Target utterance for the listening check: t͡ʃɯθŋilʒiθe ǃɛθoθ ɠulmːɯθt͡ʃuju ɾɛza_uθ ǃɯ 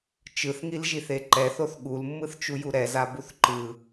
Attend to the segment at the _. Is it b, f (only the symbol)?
b